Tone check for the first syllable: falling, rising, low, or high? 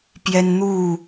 high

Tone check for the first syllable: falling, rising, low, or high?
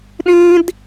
high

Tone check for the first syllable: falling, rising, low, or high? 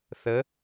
rising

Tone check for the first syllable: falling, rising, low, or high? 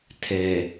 low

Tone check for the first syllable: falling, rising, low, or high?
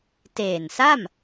low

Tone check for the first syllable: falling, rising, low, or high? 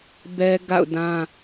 high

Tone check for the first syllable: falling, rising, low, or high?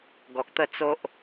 low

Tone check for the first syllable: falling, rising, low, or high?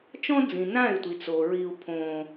high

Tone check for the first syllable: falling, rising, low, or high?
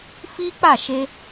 high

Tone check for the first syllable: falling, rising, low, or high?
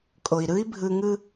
low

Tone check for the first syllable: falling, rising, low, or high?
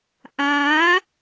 rising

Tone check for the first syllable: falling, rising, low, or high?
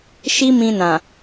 high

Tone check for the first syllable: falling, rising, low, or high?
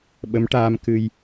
rising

